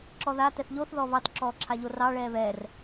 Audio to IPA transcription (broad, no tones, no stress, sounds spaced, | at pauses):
ǁ ɔ ð a t ɛ θ ʎ o θ ð ɔ β ɑ t ǁ ɔː ǁʰ a ʎ o r ɑ ɭ ɛː β ɛ r